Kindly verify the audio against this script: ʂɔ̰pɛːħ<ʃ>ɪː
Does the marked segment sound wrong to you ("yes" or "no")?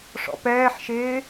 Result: no